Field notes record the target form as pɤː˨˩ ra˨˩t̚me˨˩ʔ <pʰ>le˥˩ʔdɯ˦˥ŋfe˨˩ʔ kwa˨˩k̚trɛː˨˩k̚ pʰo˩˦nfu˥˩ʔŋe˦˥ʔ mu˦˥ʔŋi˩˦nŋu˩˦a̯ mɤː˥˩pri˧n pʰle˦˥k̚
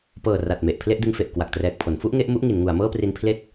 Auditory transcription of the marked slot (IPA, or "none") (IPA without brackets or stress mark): pʰ